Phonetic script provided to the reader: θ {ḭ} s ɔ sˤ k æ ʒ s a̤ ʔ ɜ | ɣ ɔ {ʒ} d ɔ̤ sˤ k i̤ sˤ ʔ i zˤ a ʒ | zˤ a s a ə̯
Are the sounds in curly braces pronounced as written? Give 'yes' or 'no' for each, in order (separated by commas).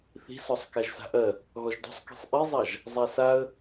no, yes